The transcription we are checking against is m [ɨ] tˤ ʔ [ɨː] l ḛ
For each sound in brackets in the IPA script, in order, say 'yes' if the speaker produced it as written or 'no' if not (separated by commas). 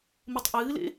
yes, yes